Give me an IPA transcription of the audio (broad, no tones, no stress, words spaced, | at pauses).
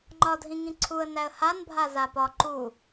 ŋ͡ǃɒ dʱĩŋĩǀʰuə̯ næə̯han bʱazapɒ ǃu